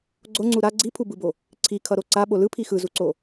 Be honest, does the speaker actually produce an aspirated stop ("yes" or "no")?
yes